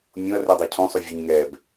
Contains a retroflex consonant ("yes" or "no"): no